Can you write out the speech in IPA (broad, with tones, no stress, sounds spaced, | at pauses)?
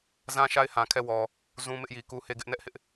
z ã˦ ʃ a˦ ɪ̯ h ã˨ kʰ ɛ˦˨ w ɔ˨ | z ũ˨ m ɪ˦ ʔ j i˨ k u˦ h e˦ ɡ ɪ˦ ʔ n ɛ˦ ʔ h ɪ˦ ʔ